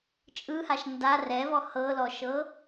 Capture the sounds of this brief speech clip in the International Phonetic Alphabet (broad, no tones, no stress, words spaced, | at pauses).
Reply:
t͡ʃʼɯhaʃ nda rɛvɔ hɤlɔʃɤ